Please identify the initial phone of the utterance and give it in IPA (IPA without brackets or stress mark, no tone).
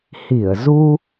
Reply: h